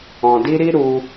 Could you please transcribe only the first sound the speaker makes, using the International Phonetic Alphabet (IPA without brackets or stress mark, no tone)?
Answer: ɔ̃